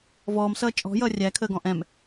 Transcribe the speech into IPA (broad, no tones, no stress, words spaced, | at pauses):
vɔːmsʌː t͡ʃʼɔ̤jʌː rʲækʰəːɡɔ̃ ʔɛ̃m